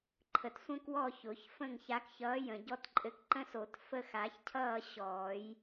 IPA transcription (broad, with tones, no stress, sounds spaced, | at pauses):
ǃʰ ə˨ t sʷ ə̃˦ k w ɔ˦˨ ç ʊ˨˩˦ ç f ə̃˦˨ ŋ ç a˨˦ k ç ʌː˨˦ j ə̃˨ ɟ ɔ˦ t ǃʼ ɘ˦˨ k ǃ ə̃˦ s o˨˩˦ t f ə˦˨ x a˨˩˦ ç cʰ ʌː˦˨ ɕ ɔː˨˩˦ j